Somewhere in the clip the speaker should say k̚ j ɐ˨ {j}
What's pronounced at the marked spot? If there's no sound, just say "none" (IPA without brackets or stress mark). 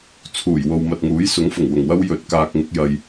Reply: j